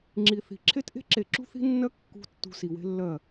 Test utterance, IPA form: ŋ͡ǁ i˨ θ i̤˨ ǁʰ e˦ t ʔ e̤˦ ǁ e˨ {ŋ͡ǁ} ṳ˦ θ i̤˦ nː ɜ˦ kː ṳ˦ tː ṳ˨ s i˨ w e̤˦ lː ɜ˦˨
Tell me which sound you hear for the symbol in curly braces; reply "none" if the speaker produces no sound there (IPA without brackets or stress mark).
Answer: ǁ